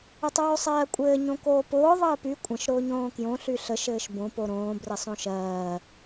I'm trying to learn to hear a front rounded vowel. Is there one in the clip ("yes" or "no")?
yes